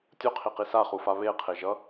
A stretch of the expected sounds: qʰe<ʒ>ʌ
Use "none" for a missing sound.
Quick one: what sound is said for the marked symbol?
ʒ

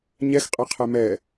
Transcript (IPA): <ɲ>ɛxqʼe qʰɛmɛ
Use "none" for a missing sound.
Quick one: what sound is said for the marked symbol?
ɲ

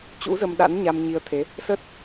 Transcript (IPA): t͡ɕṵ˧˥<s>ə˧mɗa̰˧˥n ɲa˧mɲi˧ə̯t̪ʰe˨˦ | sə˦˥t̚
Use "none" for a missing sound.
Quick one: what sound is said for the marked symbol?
z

